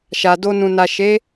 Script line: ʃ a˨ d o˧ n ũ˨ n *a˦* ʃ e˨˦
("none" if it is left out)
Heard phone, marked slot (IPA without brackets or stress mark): a˨